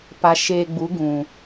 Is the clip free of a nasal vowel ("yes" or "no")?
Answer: no